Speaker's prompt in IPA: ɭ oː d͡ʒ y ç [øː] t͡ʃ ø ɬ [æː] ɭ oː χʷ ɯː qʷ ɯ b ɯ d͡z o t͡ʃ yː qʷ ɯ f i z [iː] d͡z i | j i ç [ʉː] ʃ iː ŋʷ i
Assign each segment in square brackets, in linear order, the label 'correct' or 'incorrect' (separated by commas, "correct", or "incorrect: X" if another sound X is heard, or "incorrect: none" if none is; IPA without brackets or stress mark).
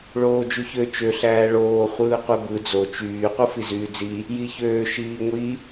incorrect: ø, correct, incorrect: yː, incorrect: øː